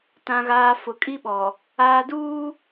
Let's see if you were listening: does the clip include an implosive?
yes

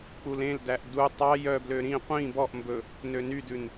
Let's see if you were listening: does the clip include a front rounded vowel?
yes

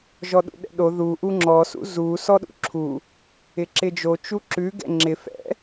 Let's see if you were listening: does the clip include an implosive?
yes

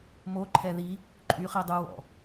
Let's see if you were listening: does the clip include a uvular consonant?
yes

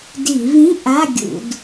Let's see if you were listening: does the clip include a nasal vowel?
yes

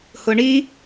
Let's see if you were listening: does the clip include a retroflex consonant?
yes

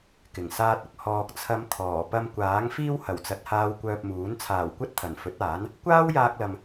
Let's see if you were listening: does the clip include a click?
no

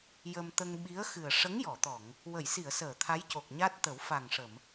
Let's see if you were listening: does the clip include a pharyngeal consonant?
no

